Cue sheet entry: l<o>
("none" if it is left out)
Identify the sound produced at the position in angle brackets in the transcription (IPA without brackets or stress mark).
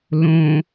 õ